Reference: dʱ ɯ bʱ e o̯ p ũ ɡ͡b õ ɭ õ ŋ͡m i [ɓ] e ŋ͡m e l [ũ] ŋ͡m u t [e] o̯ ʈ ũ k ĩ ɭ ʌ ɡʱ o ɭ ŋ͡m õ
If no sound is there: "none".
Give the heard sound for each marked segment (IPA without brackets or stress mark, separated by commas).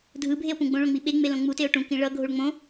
ɓ, õ, e